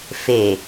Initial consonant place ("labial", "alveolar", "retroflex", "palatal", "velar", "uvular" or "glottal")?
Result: labial